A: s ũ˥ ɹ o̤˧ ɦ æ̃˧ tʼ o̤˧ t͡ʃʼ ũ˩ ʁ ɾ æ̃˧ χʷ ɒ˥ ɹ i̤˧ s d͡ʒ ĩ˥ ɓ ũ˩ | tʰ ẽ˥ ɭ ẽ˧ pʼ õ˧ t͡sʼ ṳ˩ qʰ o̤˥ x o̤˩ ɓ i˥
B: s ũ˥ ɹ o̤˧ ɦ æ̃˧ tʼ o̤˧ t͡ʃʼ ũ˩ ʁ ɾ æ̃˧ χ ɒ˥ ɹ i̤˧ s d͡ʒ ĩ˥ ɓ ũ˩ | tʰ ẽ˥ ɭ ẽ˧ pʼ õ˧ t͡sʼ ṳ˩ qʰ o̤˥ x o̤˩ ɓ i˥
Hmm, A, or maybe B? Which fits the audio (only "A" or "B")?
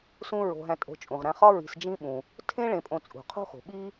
B